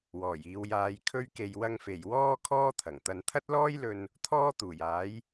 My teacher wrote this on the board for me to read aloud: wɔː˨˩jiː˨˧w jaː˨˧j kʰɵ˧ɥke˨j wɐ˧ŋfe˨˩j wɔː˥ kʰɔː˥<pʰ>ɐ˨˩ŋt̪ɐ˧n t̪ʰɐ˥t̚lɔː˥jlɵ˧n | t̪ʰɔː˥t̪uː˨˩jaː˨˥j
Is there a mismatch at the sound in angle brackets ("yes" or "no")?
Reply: yes